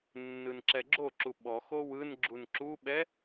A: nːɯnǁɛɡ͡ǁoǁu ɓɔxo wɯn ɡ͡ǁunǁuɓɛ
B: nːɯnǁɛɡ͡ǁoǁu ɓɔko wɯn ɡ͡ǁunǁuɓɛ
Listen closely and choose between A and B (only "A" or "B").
A